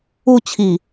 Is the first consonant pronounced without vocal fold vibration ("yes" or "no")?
yes